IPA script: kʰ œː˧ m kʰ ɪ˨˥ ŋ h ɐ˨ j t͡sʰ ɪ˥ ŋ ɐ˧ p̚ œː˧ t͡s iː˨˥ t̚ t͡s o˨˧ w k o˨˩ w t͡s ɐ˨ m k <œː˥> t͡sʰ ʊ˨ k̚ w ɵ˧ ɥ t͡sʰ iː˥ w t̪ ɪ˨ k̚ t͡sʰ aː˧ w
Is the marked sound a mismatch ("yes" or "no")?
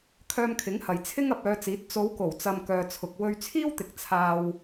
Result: yes